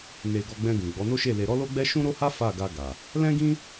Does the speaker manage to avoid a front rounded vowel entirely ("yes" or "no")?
yes